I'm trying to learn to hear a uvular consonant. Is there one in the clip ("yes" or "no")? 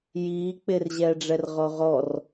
yes